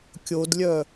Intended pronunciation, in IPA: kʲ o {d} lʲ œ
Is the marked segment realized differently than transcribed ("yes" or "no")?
no